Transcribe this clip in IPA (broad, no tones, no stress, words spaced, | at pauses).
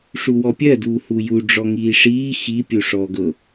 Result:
ʂuwɔpʲɜ duːhuju ɖ͡ʐɔŋiːʂiː xi pʲuʂɔːɡɤ